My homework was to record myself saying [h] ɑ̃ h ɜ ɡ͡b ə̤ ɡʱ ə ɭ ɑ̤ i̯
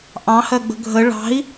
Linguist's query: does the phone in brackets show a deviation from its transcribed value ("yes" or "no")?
yes